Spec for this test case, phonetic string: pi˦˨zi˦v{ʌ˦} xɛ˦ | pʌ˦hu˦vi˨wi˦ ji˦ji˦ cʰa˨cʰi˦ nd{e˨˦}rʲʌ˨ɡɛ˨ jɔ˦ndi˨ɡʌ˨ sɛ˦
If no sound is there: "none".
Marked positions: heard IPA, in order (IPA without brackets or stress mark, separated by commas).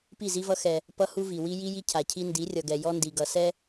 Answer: ʌ˦, i˨˦